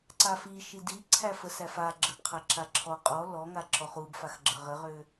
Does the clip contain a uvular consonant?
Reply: yes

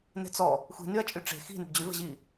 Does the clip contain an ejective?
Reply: yes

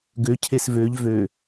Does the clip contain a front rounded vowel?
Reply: yes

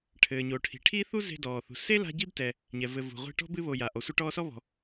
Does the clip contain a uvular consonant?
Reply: yes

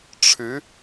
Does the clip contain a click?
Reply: no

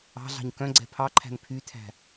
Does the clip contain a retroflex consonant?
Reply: no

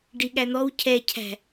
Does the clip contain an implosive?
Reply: yes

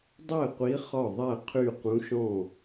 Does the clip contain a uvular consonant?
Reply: yes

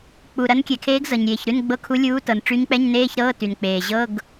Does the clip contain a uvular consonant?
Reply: no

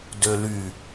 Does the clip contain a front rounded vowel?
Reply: yes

